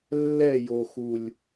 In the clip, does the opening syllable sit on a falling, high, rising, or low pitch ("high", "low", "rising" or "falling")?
falling